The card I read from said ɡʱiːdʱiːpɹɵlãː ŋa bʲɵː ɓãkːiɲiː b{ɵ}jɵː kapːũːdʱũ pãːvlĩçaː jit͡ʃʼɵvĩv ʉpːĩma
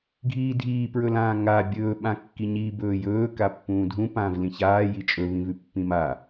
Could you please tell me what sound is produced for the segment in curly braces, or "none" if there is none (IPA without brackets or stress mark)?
ɵː